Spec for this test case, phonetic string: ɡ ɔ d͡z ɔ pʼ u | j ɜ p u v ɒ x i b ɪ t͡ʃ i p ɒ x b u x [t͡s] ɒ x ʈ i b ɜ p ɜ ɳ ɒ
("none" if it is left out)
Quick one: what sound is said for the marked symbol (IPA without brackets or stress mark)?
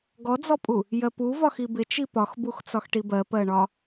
t͡s